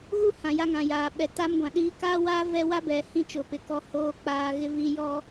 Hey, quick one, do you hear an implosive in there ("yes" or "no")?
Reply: yes